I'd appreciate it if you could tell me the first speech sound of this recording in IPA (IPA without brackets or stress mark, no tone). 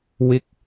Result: w